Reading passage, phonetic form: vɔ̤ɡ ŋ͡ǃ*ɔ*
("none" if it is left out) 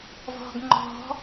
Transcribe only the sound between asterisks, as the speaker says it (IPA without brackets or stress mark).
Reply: ɔ̤